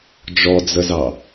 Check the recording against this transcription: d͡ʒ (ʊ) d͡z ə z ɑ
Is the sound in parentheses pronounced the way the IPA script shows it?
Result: no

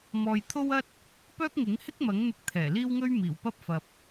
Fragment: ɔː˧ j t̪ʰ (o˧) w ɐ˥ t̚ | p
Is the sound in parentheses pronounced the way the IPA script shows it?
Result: no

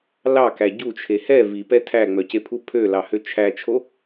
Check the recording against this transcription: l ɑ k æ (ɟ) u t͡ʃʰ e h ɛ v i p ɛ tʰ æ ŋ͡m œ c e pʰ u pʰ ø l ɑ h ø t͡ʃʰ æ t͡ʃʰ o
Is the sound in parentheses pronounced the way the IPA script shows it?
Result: yes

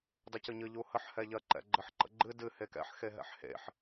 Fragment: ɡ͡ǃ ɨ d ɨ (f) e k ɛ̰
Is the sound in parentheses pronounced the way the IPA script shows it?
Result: no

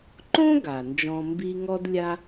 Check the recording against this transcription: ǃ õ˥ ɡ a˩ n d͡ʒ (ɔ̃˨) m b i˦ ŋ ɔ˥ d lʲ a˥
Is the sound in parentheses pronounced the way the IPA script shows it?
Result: yes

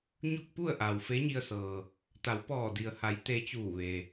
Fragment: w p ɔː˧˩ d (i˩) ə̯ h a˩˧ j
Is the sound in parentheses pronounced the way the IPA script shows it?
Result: yes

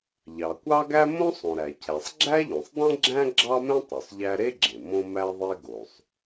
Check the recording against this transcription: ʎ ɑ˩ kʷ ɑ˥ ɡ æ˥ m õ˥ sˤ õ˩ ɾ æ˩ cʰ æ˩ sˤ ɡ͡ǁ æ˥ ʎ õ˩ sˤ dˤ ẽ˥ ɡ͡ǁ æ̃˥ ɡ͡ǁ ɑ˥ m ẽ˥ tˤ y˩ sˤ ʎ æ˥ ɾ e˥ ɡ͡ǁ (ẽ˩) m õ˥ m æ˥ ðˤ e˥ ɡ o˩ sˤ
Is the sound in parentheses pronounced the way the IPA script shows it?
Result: yes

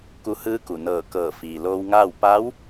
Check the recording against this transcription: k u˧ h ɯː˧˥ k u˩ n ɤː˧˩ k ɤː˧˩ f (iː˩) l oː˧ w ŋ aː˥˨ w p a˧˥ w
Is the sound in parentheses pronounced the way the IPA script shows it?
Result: yes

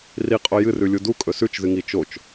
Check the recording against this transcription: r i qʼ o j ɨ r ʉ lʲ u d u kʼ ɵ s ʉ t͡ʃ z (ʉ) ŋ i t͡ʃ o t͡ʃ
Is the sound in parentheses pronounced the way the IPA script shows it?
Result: no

